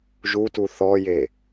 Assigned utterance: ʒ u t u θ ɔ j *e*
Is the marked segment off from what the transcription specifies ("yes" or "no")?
no